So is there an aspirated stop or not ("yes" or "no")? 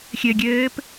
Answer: no